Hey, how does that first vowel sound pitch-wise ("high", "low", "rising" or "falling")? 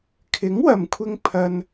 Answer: rising